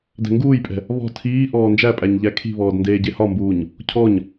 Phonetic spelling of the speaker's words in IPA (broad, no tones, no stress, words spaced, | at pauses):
dɛ̤ŋɡuːjpʼɛ̤ | βɔ̤ tʰiː ʔɔːnd͡ʒæpʼæɲ ʎækʰi̤βɔːd ndeːɟehɒmbuːɲ | cʰɔɲ